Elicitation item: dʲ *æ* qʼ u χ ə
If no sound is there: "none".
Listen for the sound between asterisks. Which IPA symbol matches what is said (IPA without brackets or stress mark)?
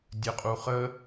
ə